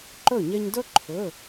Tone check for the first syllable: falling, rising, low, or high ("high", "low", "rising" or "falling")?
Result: falling